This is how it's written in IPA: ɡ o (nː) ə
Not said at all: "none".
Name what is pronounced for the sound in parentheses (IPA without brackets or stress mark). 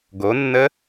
nː